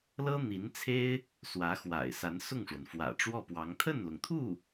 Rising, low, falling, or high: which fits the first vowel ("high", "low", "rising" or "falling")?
high